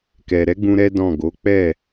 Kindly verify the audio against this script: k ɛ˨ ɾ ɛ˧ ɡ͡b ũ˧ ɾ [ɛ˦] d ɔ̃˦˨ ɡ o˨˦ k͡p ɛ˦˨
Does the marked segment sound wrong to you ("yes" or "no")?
no